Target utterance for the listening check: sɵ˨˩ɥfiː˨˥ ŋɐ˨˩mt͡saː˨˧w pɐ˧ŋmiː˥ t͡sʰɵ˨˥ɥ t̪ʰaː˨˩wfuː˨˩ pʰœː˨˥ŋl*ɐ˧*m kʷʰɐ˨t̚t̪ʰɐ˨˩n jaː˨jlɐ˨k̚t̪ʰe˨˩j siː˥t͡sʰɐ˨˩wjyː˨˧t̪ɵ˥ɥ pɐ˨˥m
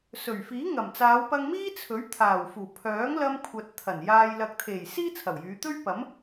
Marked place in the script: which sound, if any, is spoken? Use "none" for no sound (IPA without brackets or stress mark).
ɐ˧